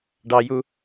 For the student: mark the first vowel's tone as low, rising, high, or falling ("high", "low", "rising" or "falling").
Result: low